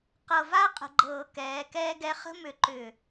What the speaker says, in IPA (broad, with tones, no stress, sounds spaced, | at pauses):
q ɤ˨ v a˦ qʼ ə̤˨ ɡ͡ǃ ɤː˨ k ɛː˨˦ k ɛː˦ ɡ ɛ˦ χ ə̤˦ m ʏ˨ ǃ ʏ˨